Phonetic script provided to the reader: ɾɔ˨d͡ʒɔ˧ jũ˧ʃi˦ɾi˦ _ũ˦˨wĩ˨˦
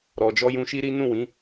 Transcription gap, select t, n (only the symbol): n